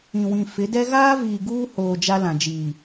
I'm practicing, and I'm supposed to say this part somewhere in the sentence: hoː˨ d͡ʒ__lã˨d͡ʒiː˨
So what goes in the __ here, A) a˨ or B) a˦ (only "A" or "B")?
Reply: B